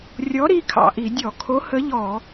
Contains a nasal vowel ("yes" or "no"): no